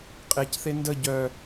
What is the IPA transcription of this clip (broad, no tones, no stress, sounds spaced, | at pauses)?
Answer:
qʼ e c θ e n d ə ɟ œ